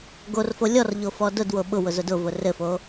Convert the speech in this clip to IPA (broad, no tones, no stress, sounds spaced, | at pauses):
ɡ o r f o lʲ ɔ r ʎ o f ɔ d ʊ d w o ɓ ʊ w ʊ z ʊ d ʊ v ʊ r ɘ f o